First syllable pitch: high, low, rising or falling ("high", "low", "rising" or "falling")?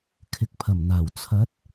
low